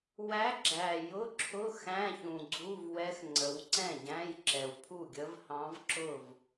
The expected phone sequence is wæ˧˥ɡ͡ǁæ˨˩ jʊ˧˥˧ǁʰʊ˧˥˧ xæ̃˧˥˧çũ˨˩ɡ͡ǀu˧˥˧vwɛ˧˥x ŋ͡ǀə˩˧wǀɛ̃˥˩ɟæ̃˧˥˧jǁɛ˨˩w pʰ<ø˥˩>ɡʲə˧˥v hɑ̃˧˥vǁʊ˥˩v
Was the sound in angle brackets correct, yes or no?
no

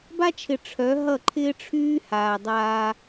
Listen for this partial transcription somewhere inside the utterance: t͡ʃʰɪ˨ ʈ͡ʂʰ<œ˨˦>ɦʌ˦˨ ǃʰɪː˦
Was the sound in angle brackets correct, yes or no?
yes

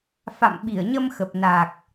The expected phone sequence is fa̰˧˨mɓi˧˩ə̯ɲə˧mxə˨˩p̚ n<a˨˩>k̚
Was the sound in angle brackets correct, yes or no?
yes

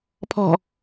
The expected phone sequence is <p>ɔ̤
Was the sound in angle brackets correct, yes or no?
no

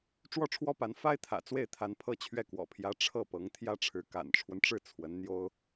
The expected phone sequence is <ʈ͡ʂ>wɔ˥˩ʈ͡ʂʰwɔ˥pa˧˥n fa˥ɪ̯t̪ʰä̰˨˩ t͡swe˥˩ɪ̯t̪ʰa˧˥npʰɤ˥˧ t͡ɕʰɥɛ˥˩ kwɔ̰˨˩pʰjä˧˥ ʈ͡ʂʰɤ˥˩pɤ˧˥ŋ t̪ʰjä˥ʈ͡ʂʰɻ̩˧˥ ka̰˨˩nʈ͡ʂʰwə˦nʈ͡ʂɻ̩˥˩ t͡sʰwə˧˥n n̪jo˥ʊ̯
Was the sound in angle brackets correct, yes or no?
yes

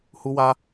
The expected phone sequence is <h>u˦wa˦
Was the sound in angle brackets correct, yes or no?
yes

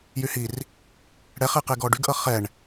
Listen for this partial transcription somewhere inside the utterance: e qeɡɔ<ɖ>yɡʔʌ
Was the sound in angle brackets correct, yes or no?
yes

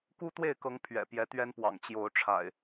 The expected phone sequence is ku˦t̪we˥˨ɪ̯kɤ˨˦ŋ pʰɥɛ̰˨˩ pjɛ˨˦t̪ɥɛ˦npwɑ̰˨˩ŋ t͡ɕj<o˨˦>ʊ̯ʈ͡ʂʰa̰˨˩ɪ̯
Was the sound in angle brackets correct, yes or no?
yes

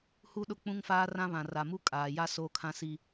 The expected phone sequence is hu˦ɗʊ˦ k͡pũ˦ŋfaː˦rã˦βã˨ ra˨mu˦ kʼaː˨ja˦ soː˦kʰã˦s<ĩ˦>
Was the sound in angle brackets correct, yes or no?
no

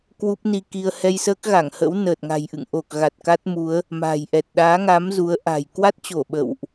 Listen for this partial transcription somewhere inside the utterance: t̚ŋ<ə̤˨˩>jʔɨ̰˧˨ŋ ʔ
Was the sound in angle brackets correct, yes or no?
no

